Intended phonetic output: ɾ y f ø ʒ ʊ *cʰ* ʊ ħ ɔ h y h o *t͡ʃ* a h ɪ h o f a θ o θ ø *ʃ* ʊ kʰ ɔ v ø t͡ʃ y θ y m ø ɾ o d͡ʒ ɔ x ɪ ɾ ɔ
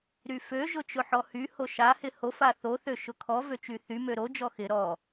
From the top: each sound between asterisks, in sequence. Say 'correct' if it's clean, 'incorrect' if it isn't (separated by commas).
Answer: incorrect, incorrect, correct